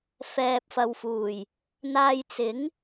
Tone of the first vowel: low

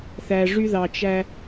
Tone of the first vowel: low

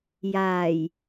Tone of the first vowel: low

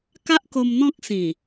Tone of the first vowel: high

